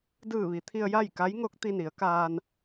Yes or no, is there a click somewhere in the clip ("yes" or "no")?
no